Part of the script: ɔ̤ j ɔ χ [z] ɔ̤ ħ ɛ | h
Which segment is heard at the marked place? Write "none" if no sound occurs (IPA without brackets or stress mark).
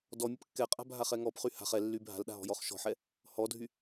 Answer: ʃ